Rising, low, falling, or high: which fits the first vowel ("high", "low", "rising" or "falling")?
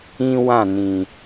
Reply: high